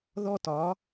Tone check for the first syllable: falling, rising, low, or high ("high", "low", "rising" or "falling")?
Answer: high